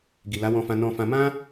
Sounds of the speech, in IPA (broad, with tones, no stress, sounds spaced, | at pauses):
ɡ i˨ l a˨˦ w ɔ̃˧ f ã˧ n ɔ̃˧ f ã˧ m ã˦